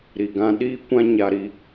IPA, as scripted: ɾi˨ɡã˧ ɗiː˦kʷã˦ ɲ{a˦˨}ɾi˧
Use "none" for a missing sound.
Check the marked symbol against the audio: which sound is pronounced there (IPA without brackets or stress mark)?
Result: a˧